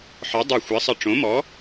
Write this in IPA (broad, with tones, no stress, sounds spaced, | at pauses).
ħ ɒ˨˥ dˤ o˧˩ xʷ ɛ˨˥ sˤ ə˧˩ ʈ͡ʂ õ˨˥ m ɔ˨˥